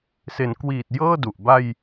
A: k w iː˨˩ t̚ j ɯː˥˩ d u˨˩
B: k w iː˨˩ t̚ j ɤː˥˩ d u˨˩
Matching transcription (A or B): B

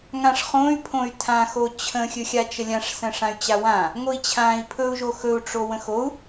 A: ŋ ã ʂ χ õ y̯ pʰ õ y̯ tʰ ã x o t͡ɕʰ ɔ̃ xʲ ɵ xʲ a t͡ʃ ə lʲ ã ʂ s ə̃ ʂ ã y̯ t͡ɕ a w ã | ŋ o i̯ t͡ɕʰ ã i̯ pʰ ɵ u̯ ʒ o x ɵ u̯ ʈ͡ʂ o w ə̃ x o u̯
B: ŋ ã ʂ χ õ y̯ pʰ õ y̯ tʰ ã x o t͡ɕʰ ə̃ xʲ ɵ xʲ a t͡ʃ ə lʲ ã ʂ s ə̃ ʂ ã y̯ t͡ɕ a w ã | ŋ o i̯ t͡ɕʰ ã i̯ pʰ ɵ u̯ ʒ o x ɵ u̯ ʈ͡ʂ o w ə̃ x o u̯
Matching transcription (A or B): B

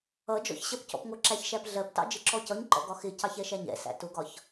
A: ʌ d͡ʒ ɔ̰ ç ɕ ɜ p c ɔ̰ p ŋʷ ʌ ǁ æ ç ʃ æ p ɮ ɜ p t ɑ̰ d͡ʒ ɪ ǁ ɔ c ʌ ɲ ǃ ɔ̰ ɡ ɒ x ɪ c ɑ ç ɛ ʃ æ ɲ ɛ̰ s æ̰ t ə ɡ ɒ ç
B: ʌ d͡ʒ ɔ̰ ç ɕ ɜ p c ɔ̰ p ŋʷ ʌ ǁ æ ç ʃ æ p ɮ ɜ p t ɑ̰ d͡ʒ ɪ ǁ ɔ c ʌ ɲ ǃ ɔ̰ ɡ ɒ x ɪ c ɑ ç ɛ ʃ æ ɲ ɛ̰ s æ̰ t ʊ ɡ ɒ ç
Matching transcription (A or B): B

